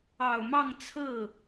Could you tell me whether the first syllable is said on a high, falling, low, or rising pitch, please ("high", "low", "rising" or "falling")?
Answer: low